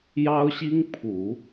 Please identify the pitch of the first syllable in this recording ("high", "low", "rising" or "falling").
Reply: high